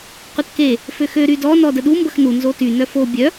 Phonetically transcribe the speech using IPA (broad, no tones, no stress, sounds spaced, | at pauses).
qʷ ə t k e | f ø x ø ɾ y d ɔ n ɔ d ə ɗ u m b ə x n u n z o t y n œ f o bʲ œ